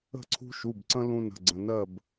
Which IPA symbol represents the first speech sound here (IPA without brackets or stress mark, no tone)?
ə̤